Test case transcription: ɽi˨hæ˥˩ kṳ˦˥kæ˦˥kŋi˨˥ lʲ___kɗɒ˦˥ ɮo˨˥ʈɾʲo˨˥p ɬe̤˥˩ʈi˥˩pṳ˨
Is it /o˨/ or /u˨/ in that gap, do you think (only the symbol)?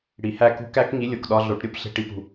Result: o˨